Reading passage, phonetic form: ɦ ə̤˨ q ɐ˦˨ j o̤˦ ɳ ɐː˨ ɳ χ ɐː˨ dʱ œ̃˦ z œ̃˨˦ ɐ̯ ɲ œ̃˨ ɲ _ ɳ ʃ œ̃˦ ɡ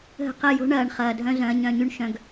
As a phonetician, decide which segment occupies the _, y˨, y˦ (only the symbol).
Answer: y˦